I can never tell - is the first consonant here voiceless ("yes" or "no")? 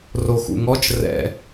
no